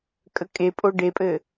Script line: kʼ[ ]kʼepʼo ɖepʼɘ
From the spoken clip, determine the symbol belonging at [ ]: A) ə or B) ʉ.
A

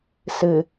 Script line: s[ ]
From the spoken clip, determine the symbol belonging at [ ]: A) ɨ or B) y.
A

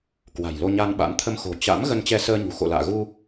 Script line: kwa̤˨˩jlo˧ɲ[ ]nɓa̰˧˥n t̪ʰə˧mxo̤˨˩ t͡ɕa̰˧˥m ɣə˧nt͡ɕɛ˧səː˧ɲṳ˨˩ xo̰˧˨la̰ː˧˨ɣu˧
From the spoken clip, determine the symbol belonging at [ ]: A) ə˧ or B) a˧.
B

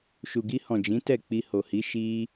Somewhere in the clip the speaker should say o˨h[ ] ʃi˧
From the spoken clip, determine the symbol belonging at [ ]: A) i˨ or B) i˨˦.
B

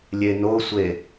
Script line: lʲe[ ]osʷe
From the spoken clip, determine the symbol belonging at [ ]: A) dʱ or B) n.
B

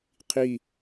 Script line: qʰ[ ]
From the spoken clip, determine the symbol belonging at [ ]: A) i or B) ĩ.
A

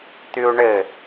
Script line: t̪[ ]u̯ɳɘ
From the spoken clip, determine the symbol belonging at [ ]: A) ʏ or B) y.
B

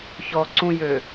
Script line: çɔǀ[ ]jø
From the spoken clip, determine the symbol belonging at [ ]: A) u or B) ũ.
B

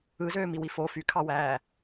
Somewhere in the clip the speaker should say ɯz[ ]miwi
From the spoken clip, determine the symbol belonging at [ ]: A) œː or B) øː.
B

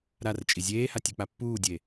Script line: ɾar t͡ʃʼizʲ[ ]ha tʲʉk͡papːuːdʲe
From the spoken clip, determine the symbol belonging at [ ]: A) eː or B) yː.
A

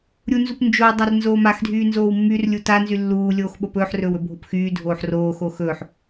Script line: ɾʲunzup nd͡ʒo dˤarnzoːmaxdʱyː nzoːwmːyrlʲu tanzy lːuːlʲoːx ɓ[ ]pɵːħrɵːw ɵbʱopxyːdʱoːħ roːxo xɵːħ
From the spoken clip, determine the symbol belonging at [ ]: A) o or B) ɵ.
A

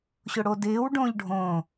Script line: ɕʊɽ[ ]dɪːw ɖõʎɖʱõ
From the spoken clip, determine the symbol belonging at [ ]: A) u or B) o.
B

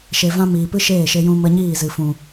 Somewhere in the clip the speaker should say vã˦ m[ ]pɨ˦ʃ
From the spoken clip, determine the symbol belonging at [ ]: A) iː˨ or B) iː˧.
A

